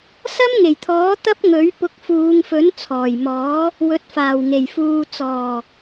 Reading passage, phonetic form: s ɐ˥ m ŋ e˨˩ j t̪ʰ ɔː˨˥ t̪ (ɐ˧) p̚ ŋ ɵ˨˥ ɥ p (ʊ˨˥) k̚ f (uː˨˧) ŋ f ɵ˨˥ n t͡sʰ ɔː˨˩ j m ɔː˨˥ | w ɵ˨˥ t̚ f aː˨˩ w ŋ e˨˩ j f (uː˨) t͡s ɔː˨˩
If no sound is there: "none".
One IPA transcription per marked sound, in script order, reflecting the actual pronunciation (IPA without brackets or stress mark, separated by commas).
ɐ˥, ʊ˨˥, uː˨˧, uː˨